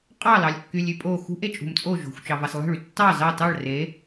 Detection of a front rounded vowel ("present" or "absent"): present